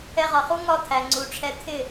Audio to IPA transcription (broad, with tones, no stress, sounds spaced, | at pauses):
ɛ˧ ʁ ɒ˨ χ u˦ ŋ ɒ˦˨ t̪ʰ æ˨ ŋ͡ǀ u˨ ʈ͡ʂʰ ɛ˧ t̪ʰ ɪ˦˨